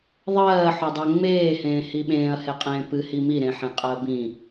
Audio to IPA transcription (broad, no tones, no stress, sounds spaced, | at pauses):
ðˤ ɜː ħ o dˤ ɜ ŋ͡m eː h ẽː h i ɓ ẽː ɐ̯ h e qʼ ẽː p ɨ h i m i ɾ ẽ ħ ẽ qʼ ɜ b ĩ